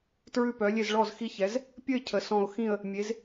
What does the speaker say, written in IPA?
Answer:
tɹʉ˥˨pœ˨˥ lʲe˥˨z ɭɔ˥˨zxi˥˨çɛ˨˥z | pʲə˥˨ɪ̯ cʰə˨˥sɔ̃˥˨ʊ̯ xĩ˥˨ə̯ | mʲe˨˥z

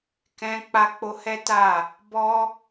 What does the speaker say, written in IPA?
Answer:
kɛ̃˧k͡pa˧k͡po˧ hɛ˦ta˦˨ | bɔ˧

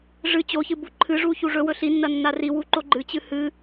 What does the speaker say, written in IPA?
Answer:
ʐɨ t͡ɕoçɨ buǃʰɨʐu çuʐɵwɵ ɬinːɐ nːariwu ǃoɡ͡ǃɨt͡ɕɨ hɨ

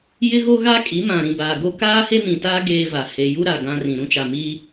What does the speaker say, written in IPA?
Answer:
jɪ˦ɣo˦ ɣa˦kʼi˨˦mã˨ ɾĩ˨baː˨ ɡo˦ kaː˦he˦mĩ˨taː˦ ɡeː˦va˨ he˨ju˦ ɾa˨ɡã˦rĩ˨ ɾũ˦t͡ʃa˨miː˦

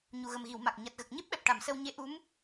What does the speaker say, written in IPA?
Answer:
ɲu˨˩ɣə˨˩m ɣi˨˩˨w ma˨˩k̚ ɲa˨˩t̚ɣə˨˩k̚ ɲe˦˥p̚ɓɛ˨˩p̚ ʈa˨˩˨msə˧w ɲe˧˥ʔu˧˥m

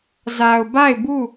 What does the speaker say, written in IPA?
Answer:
za˨ʊ̯ba˦˨ɪ̯bu˦˨

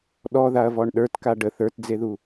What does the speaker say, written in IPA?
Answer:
ɗɔðaɐ̯vɔɳ ɗə˞tka ɖə θə˞td͡zeðu

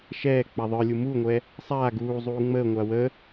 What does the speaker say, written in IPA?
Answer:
ʃɛː k͡paðˤə˞lʲu muŋʷɛ | sˤaː ɡuːzˤuː ŋ͡məːŋʷa wə

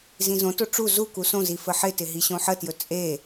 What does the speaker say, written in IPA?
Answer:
zĩzõto ʈ͡ʂu zu kusõzi fəħɪtɪ ɦiɕõħətjɵ t͡sʼe

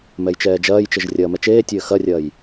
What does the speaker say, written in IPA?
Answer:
mɛjt͡ʃɛːd͡ʒɐːjt͡ʃɘʒ rʲɐːmɛt͡ʃeːtʲɘː xɐrʲɐːj

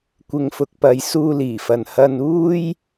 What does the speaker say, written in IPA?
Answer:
kʷɪ˨ŋfʊ˨k̚pɐ˨j suː˧liː˨˩fɐ˨n hɐ˧nuː˥j

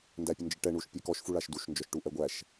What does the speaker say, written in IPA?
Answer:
ndæpʲənd͡ʒəʈɛ ɳuʃpʲekɔʃ fuɭaʃduʃ nd͡ʒɔʃʈuʔɛɡʷæʃ

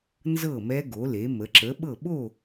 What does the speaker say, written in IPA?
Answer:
nzɤ˥˨mɛ˦˥ ɡo˩˧le˩˧ mə˩˧ǁə˨˥ɓɤ˥˨ ɓo˥˨

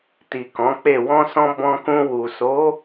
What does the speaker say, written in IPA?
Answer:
ti˨kɔ̃˨˦k͡pe˦˨ wɔ̃˧sɔ̃˧ bɔ̃˧kũ˧ wu˨so˨˦

